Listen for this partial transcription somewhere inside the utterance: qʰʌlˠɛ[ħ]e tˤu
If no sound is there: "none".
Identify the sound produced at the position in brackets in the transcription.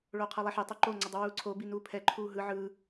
ħ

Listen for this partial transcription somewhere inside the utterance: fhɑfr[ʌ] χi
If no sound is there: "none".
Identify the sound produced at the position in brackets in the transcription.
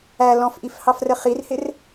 ə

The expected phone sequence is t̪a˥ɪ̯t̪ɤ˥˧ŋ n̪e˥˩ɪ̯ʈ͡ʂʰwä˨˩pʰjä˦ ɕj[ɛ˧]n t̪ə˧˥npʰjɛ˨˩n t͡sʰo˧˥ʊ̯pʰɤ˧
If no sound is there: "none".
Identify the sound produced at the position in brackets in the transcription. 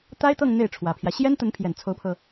ɛ˥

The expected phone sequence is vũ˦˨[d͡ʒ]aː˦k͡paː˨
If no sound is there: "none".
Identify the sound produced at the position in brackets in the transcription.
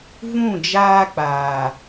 d͡ʒ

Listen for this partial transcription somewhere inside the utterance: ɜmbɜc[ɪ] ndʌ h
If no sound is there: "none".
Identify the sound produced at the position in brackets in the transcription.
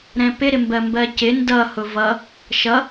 ɪ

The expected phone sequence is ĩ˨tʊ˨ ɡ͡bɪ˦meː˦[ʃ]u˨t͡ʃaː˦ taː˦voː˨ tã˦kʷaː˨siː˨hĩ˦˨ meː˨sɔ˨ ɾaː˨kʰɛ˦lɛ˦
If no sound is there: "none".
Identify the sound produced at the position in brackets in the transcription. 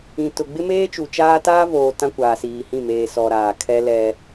t͡ʃ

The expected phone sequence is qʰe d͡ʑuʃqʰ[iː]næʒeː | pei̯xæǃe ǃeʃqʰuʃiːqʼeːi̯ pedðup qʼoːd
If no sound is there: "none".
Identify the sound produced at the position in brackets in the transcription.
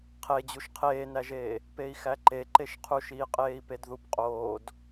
eː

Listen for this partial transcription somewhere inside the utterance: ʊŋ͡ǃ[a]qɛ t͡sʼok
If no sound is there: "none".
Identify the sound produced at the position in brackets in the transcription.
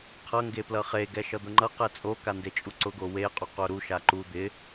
ʌ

